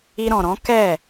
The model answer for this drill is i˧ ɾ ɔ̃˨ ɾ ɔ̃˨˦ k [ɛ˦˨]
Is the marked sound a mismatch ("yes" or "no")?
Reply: no